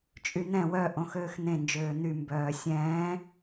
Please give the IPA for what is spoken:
t͡ʃʼ y n̪ ɛ̃ w œ ʔ õ x øː x n̪ ẽ n d͡ʒ øː n̪ y m b œː sʲ ɛ̃ː

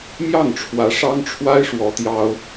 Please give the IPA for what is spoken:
m j ɑ˥˩ ŋ ʈ͡ʂʰ w ä˧˥ ʂ ɑ˥ ŋ ʈ͡ʂʰ w a˥ ɪ̯ ʂ w ɔ˧˥ t̪ j ɑ˥ ʊ̯

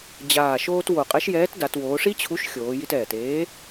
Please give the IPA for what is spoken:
d͡ʑ aː˨˩ ʃ oː˧ t w o˨˩ qʼ ɛ˨˥ ʃ j ɛː˨˥ t d a˩˧ t w oː˩˧ ʂ i˦˥ t͡ɕʰ u˨˥ ʃ xʲ oː˩˧ j i˧ t ɛː˨˩ t eː˨˥

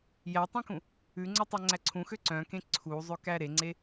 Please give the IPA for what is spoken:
j æ tˤ ẽ k ũ | ʉ ŋ͡ǀ œ tˤ æ ŋ͡ǀ æ ǀʰ ũ x ø ǀ œ̃ k ẽ ǀʰ u zˤ ø k æ ɾ e ŋ͡ǀ e

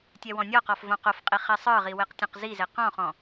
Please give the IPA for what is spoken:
tʲ ɛ w ɔ̃ nʲ ɔ q ɔ f v õ q o f qʼ i χ ɛ sˤ ə˞ ʁ i w e q tʲ õ q z i z e q ɔ̃ χ ɔ̃

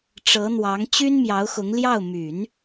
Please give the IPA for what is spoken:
ʈ͡ʂ ɤ˧˥ n̪ w ɑ˧˥ ŋ t͡ɕ y˥ n m j ɑ˧˥ ʊ̯ x ʊ˧˥ ŋ l j ɑ˥˩ ʊ̯ m y˨˩˦ n

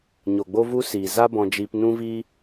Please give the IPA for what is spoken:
ɲ o˨ ɡ͡b o˦ v u˦ s iː˨ z a˦ b ɔ̃˧ d͡ʒ iː˧ p n ũ˦ v iː˦

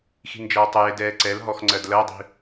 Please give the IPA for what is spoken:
x i̤ n d͡ʒ ʌː tˤ ə j ɪ d ɛː ǀ ɛ l ɦ ɔ x ŋ͡ǀ ɜ d l ɜ dˤ i̤

